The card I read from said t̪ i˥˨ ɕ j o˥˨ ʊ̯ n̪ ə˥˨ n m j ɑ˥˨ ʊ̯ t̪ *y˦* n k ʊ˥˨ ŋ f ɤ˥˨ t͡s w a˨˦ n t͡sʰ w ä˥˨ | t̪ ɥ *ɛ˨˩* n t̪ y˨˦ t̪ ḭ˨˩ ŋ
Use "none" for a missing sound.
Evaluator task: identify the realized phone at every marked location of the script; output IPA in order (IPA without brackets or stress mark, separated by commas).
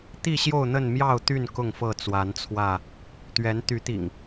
y˥˨, ɛ˨˦